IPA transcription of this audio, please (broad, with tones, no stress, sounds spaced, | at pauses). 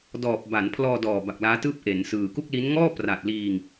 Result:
d ɔː˨˩ p̚ b a˩˦ n pʰ l ɔː˧ d ɔː˨˩ b a˨˩ k̚ l aː˦˥ t ɯː˥˩ p̚ ʔ e˩˦ n s ɯː˨˩ k u˥˩ k̚ l i˦˥ n ŋ ɔː˥˩ p r a˨˩ t̚ l iː˧ ŋ